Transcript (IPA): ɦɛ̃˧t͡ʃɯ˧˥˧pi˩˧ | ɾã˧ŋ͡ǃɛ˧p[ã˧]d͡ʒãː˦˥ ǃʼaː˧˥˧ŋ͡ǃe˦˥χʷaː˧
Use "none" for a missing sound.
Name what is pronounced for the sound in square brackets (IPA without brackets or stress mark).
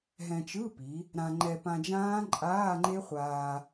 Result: ã˧